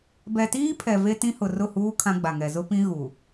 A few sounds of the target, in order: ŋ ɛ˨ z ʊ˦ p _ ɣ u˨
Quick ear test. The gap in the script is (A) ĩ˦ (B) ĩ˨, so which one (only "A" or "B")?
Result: A